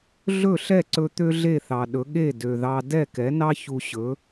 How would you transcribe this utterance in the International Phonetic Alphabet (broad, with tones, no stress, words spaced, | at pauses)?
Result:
ɮɵ˥˩ɬɛ˥˩ǀɵ˧ t̪ø˥ɮe˥˩θɑ˩ ɗɵ˩˥ɠe˥˩ dø˩ðɑ˧ dɛ˥˩kɛ˩˥nɑ˥ çu˧ɕɵ˩˥